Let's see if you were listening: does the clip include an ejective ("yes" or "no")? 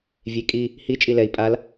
yes